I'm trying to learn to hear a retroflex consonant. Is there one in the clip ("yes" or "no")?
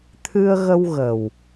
no